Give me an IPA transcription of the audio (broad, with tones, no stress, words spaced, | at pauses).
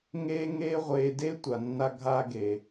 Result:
ŋeː˥ŋeː˥ʁʷeː˧ de˥tʷa˩nːa˧ɡʱaː˧ ɡe˩